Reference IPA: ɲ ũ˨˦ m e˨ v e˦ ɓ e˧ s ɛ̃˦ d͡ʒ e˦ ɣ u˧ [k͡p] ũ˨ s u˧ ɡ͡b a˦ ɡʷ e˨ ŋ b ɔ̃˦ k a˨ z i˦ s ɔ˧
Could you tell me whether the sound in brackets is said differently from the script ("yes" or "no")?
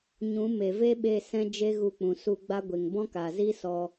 no